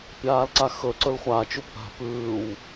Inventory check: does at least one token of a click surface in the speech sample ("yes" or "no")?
yes